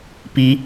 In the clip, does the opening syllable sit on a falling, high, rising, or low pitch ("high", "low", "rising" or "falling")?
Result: rising